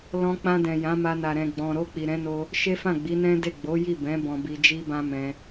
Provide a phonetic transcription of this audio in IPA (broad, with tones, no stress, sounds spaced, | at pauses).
l ɔ̃˧ k͡p ã˧ d ɛ̃˨ j ã˨˦ m a˧ n a˨ ɾ ɛ̃˨ ɡ͡b ɔ̃˨ ɾ o˧ k͡p i˨ ɾ ɛ̃˨˦ n o˧ | ʃ e˦ f ã˦˨ ɡ͡b i˨˦ n ɛ̃˦ d e˦˨ ɡ͡b o˨˦ j i˦˨ b ɛ̃˨˦ b ɔ̃˧ b i˧ d͡ʒ i˦ b ã˦ m ɛ̃˧